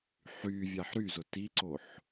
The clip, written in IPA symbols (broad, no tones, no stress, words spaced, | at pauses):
ħy vʲaħɾyzʊ tiǀoħ